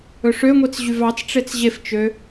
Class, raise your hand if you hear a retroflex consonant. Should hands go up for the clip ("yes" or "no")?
yes